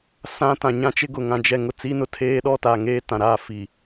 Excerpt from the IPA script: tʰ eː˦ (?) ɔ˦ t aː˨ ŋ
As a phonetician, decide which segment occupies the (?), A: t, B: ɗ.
B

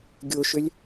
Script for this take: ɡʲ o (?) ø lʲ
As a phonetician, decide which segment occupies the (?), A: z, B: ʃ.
B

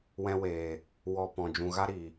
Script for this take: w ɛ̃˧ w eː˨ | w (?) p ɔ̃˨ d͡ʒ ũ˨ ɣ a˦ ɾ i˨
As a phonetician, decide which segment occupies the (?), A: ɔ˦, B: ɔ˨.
B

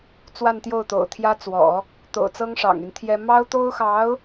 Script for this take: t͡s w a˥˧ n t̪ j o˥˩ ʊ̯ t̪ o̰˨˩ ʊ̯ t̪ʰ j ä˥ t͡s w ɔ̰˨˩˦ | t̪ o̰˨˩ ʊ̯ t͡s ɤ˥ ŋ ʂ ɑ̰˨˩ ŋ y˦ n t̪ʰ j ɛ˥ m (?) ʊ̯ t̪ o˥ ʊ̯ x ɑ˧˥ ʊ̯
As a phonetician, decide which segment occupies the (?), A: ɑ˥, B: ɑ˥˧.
A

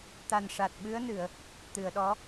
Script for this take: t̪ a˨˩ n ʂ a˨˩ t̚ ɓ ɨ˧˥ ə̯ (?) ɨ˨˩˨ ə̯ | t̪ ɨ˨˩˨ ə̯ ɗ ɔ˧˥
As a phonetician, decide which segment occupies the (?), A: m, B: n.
B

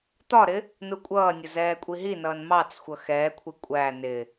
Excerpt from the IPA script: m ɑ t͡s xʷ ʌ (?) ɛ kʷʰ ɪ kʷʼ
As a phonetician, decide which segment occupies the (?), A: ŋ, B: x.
B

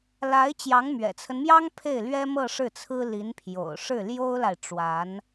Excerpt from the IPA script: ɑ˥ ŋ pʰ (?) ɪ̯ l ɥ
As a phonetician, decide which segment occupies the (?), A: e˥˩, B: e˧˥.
A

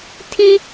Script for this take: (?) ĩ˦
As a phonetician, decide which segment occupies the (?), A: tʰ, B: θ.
A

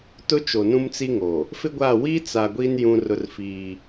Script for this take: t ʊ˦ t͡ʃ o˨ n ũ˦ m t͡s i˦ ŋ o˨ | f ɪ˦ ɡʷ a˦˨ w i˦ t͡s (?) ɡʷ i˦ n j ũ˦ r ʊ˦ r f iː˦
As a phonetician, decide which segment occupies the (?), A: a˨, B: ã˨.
A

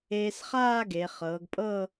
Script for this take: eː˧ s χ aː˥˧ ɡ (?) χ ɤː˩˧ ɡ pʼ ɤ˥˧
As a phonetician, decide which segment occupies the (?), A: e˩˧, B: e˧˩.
A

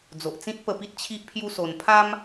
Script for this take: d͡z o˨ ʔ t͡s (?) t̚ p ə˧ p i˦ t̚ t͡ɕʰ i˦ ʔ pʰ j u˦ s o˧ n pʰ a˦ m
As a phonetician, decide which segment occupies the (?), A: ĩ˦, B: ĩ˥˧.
A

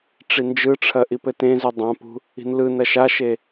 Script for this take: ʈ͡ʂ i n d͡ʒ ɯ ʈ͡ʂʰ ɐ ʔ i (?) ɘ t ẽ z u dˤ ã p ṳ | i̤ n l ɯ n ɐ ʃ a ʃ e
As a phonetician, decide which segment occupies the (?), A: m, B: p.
B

